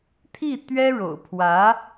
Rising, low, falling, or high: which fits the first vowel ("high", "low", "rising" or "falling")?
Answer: falling